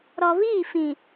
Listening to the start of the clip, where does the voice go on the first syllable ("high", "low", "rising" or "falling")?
low